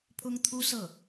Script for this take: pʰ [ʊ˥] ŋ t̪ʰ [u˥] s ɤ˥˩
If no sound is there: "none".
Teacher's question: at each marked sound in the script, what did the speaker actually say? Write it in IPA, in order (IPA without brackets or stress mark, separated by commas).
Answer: ʊ˥, u˥